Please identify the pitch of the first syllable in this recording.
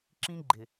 high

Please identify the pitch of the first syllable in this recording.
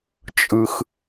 low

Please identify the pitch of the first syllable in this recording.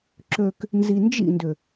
low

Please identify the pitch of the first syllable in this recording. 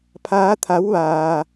rising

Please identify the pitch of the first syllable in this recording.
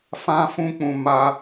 high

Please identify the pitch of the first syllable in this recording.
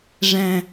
low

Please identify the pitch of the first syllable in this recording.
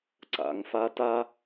rising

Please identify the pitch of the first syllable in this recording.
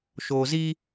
low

